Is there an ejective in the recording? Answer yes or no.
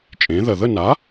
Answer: yes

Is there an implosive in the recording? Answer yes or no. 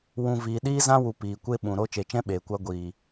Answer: yes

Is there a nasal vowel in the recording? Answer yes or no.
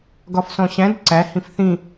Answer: yes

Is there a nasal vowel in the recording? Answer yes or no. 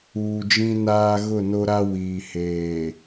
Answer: yes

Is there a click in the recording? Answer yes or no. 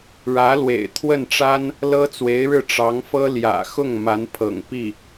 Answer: no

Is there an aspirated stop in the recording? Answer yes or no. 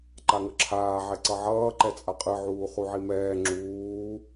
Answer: yes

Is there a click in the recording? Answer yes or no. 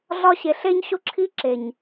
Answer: yes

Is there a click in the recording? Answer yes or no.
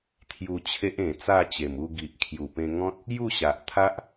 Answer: no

